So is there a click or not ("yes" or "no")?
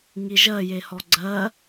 yes